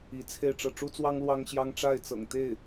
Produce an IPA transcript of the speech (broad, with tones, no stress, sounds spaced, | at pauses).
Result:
i˧˥ t͡sʰ e˥˧ ɪ̯ ʈ͡ʂ ɤ˥˩ ʈ͡ʂ u˥ t͡s w ɑ˥ ŋ l w ɑ˥ ŋ ɕ j ɑ˥ ŋ ʈ͡ʂ a˥˩ ɪ̯ t͡s ɤ̰˨˩ ŋ t̪ e˥˩ ɪ̯